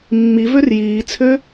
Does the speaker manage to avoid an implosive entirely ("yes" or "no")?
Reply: yes